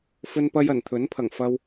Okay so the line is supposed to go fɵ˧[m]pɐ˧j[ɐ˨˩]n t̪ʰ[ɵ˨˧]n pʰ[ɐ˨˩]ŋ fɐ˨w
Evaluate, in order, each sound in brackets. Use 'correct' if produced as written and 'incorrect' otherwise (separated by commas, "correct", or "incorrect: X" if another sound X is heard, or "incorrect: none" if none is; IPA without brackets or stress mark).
incorrect: n, correct, incorrect: ɵ˨˥, correct